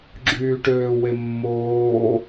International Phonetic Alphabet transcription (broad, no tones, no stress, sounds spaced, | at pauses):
ɡ͡ǁ yː ʈ øː w e mː oː